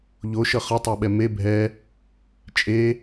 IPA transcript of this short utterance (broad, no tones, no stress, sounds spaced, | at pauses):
ʎ o ʃ ʌ χ ʌ tˤ ɛ ɓ ɛ m e bʱ ɛ | t͡ʃʼ e